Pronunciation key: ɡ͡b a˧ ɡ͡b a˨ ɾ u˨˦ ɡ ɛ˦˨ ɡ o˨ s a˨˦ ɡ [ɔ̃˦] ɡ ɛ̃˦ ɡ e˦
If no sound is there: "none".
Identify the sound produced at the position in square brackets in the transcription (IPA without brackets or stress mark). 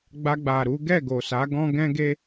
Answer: ɔ̃˦